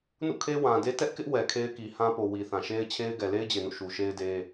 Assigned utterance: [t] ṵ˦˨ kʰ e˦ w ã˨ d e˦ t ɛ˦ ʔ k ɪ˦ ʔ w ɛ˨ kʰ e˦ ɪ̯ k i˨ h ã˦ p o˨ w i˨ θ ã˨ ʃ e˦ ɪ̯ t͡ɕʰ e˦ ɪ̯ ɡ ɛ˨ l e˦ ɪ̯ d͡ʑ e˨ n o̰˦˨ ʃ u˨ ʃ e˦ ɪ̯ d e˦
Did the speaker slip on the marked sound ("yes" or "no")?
yes